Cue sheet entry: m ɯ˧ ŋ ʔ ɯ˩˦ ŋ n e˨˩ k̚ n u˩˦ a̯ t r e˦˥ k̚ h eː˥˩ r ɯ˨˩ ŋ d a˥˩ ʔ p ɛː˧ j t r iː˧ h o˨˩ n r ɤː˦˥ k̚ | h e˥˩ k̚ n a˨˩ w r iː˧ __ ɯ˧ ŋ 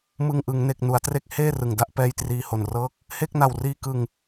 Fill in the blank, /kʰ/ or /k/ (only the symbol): k